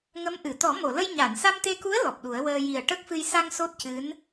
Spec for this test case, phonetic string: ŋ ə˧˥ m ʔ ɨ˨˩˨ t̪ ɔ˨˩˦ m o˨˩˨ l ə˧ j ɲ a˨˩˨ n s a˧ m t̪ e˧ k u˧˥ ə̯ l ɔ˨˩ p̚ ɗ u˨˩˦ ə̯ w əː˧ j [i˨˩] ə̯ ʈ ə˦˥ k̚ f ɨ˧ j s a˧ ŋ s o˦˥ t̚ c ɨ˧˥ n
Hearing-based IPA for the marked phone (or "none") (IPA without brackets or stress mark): i˨˩